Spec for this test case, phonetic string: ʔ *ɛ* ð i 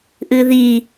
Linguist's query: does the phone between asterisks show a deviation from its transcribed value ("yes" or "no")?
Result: yes